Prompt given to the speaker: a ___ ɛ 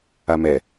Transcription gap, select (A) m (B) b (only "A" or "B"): A